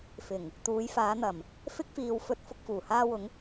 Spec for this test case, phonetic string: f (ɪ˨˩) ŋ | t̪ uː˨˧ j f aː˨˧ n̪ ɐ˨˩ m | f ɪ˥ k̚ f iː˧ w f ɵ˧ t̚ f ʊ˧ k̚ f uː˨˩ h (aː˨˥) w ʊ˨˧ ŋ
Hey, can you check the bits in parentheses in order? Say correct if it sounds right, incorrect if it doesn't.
correct, incorrect: aː˧

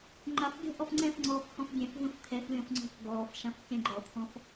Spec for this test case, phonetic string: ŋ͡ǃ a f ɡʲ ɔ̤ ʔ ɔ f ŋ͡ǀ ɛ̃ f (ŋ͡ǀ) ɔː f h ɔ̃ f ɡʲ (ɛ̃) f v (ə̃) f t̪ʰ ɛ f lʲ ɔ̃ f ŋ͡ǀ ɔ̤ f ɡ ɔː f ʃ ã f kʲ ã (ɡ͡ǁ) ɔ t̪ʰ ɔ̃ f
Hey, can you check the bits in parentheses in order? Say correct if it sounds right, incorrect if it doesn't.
correct, correct, correct, incorrect: ɡ͡ǃ

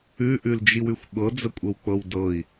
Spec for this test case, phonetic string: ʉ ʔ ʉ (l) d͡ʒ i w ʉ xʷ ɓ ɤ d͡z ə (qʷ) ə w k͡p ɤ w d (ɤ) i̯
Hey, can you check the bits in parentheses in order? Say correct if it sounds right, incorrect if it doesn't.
correct, incorrect: kʷʼ, correct

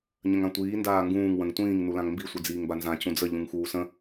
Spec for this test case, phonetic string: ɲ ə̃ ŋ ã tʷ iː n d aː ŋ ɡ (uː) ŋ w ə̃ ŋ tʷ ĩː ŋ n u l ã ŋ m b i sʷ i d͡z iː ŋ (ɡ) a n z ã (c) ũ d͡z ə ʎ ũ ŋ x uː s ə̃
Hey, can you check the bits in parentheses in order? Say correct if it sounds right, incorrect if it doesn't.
incorrect: ũː, incorrect: b, correct

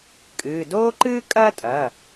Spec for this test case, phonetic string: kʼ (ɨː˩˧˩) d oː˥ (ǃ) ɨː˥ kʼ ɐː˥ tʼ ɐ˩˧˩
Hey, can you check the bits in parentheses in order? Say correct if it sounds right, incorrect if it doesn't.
correct, correct

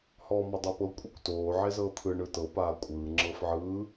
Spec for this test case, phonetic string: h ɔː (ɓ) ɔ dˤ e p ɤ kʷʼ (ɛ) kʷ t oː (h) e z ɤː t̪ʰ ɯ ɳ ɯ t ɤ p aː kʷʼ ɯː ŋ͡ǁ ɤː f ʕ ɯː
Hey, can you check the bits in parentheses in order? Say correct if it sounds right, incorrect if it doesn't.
incorrect: m, correct, incorrect: ʕ

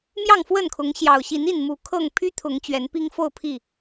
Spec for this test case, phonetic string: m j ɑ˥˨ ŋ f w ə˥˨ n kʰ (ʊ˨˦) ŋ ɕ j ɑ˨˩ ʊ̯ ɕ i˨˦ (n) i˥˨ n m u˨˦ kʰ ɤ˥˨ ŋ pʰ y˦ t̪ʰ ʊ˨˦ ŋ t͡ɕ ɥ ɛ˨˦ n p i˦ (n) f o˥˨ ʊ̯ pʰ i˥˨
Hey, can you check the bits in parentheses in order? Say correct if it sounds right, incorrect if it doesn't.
correct, correct, incorrect: ŋ

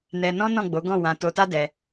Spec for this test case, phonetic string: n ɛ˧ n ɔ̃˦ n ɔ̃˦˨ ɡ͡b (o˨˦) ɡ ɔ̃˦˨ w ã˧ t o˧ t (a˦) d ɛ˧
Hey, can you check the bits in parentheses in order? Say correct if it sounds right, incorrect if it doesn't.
correct, correct

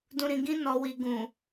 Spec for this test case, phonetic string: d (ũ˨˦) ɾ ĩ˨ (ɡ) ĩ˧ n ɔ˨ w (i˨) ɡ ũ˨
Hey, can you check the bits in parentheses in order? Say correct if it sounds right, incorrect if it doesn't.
incorrect: ũ˨, correct, correct

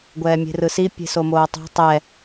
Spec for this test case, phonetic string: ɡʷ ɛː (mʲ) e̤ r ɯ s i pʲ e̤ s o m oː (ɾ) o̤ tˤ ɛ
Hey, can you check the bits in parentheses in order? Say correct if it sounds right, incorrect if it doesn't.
correct, incorrect: tˤ

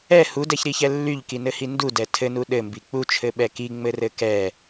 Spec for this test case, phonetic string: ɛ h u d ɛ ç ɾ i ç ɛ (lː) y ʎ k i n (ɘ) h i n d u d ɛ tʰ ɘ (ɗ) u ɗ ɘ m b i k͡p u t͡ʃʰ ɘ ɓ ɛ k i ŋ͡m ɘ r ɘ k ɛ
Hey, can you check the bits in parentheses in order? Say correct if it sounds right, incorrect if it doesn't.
correct, correct, incorrect: n

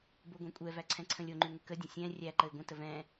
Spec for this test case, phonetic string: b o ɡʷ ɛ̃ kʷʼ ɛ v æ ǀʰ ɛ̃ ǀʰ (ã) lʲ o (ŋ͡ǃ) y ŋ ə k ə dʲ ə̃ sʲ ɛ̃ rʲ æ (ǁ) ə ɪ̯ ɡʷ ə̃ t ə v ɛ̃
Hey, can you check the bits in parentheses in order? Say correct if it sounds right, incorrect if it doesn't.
incorrect: ə̃, correct, incorrect: ǃ

